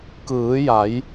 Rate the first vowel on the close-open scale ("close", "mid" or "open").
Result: close